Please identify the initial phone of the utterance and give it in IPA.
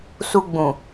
s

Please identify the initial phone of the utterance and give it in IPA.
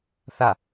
θ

